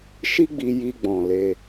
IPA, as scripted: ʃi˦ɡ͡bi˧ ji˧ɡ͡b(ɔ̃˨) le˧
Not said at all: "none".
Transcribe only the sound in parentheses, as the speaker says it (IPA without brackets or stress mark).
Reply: ɔ̃˨